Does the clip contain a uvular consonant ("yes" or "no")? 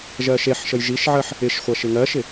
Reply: yes